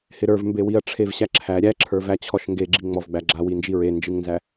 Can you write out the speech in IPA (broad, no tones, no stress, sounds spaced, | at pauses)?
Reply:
h ɪ ɾ ə˞ v m b e w i ɐ̯ ʈ͡ʂʰ e v ɕ æ ǁʰ æ ɾʲ æ ǁʰ ə˞ v æ t͡ɕʰ ɔ ʃ ŋ ɡ e ɡ͡ǁ i ŋ͡m ɔ v ɡ͡b æ ɡ͡ǁ a w i n d͡ʒ i ɹ e n d͡ʒ ɨ ŋ n z æ